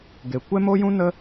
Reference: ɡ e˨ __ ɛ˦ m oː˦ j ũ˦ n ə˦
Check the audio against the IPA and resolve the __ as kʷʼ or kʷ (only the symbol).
kʷ